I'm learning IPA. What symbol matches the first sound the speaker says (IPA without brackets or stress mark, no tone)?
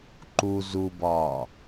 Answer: ǃ